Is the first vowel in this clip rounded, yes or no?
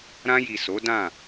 no